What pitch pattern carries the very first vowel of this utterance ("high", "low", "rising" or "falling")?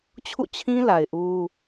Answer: falling